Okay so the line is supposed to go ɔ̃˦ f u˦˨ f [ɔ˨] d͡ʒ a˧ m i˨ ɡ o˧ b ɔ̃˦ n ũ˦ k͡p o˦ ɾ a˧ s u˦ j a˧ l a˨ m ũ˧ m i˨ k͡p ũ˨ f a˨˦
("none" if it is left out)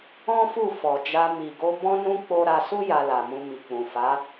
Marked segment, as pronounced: ɔ˨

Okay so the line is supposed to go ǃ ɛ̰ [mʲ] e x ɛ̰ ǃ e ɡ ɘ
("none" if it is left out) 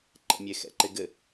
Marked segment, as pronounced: mʲ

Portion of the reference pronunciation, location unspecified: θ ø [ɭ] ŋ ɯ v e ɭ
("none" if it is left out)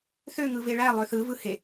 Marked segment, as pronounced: none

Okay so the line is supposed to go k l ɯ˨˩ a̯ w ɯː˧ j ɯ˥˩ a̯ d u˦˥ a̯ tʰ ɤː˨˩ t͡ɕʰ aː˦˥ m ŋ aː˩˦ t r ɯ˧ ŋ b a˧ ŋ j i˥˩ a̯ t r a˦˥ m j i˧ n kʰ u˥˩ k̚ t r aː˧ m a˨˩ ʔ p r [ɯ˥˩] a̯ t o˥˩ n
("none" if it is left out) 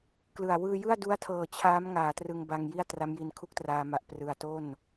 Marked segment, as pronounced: ɯ˧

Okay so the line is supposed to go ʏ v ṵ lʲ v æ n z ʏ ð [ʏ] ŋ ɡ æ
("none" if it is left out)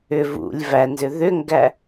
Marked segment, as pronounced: ʏ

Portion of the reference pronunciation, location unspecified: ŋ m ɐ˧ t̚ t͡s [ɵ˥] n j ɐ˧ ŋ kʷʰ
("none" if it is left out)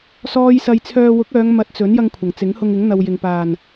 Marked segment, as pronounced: ɵ˨˥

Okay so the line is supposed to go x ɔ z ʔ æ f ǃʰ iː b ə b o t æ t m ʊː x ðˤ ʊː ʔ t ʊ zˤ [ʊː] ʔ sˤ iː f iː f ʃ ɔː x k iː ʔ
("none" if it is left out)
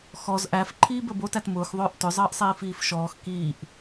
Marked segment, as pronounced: əː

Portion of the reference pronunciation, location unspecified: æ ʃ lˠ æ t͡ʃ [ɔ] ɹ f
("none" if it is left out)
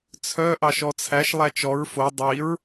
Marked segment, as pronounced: ɔ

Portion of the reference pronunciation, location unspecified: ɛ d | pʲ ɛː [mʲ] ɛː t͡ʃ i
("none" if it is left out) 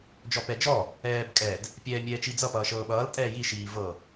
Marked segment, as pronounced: mʲ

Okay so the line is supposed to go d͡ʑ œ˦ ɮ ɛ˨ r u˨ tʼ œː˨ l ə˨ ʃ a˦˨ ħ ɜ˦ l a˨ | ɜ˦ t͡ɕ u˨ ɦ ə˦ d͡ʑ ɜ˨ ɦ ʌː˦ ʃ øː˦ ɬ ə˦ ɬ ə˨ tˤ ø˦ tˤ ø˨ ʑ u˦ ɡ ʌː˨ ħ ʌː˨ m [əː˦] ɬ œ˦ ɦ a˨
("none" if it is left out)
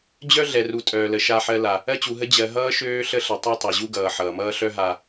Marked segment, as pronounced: ʌː˦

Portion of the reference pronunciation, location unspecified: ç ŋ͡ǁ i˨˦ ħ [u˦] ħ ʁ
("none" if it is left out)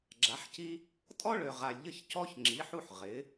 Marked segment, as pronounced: u˦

